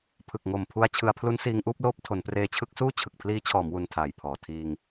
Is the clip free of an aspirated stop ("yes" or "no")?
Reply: no